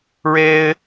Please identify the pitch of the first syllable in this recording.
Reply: high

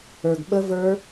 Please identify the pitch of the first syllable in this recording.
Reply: low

